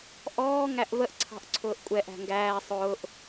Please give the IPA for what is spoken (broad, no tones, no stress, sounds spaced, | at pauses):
ʔ ɔː ŋ æ ʔ v ə ʔ ǀʰ ɑ̤ ʔ ǀʰ ʊː ʔ kʷʼ ɛ ʔ æ̤ ŋ ɡ æː sˤ ʊː ʔ